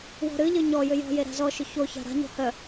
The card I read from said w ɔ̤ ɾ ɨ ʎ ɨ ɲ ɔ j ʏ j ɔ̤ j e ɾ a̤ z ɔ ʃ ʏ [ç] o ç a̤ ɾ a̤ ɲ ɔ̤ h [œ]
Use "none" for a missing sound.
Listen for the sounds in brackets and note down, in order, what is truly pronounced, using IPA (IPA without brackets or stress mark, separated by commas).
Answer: ç, œ